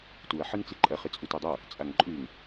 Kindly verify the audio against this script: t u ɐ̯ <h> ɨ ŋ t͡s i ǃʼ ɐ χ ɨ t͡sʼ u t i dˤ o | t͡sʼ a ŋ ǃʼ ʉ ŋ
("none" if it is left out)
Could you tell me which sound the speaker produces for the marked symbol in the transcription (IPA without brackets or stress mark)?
ħ